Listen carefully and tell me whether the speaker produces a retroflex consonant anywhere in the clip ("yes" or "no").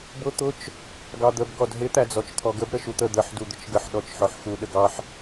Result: no